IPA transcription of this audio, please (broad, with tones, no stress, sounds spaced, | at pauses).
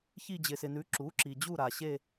ç i˦˨ d͡ʑ ɪ˩ s ɪ˩ n ʉ˩˥ ǁ u˩˥ ǁ i˩ d͡ʑ u˦˨ ɾ a˩ ɕ e˦˨